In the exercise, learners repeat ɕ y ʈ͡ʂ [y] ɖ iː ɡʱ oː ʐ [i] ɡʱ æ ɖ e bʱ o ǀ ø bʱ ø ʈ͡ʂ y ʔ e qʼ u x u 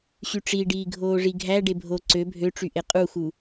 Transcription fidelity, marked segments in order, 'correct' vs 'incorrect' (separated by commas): incorrect, correct